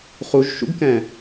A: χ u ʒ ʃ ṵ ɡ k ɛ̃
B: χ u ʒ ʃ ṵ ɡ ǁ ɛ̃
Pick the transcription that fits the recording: A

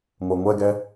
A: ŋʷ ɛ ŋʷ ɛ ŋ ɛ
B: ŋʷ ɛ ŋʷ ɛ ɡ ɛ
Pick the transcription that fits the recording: B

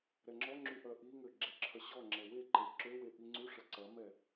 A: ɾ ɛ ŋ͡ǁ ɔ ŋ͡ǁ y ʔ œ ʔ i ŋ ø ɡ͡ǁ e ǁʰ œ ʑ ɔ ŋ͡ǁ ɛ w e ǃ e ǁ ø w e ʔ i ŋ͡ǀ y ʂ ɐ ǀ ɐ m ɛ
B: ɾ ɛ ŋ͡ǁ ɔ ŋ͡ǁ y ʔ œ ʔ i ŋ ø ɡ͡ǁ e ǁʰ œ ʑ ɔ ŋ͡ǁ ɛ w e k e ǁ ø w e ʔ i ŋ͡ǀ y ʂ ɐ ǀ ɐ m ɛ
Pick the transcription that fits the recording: A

